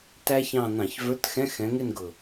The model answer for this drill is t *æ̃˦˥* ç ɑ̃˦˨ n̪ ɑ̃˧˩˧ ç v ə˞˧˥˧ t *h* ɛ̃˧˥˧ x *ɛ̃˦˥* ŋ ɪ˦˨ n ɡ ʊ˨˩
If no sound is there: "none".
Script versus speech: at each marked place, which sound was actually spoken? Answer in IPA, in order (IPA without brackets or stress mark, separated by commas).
æ˦˥, x, ɛ̃˨˦